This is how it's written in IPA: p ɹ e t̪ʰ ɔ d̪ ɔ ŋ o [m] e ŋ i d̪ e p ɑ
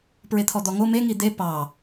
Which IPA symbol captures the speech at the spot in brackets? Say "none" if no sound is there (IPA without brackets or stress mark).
m